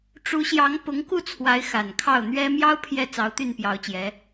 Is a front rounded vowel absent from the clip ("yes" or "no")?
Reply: no